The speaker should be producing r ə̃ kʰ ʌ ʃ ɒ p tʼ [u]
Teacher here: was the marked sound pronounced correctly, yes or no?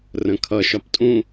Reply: no